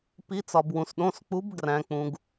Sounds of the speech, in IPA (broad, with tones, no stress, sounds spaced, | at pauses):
p i˩˧ t͡s ɒ˩ b w ũ˩ s ɗ õ˩˧˩ s k͡p u˩˧ b ɡ r æ̃˩ k͡p ũ˩ ɡ